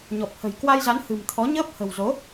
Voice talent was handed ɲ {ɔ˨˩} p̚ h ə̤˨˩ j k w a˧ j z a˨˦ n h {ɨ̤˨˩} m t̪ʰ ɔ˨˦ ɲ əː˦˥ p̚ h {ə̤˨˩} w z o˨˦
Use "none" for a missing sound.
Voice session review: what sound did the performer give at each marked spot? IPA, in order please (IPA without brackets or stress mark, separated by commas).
ɔ˨˩, ɨ̤˨˩, ə̤˨˩